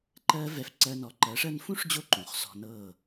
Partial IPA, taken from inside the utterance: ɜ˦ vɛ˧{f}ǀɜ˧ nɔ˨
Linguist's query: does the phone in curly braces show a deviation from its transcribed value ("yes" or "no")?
no